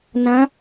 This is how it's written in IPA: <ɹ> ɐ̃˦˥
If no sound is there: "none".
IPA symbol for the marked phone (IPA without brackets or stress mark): n